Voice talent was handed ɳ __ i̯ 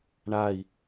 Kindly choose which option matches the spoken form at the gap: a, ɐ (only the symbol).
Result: a